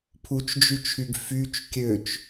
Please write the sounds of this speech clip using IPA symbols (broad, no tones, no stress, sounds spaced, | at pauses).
pʰ u t͡ʃ d͡ʒ y t͡ʃʰ y ɡ f y t͡ʃ kʲ ø t͡ʃ